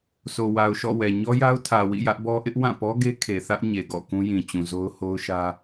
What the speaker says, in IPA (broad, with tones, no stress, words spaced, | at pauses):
so˨wa˨ʊ̯ʃɔ̰˦˨wɛ˨ ɲɔ˦ja˦ʊ̯tʰä˨wḭ˦˨ jä˦ʔbɔ˦ ʔɪ˦ʔwã˦˨pɔ˦ ɡe˦kʰe˨θä˦ʔ ɲe˨ɡɔ̰˦˨ kũ˦jĩ˨t͡ɕũ˨zo˦ʊ̯ ho˦ʊ̯ʃä˦